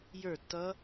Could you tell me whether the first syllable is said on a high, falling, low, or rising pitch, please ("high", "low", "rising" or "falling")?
falling